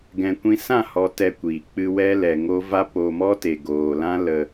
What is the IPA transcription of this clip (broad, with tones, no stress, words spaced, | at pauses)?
ɡɛ̃˧ kʷĩ˧sã˦˨ hɔ˧ tɛ˦kʷiː˨k͡pɨ˦ wɛ˦lɛ˨ŋo˦ va˦po˧mɔ˦ te˨ɡoː˨lã˦ lə˧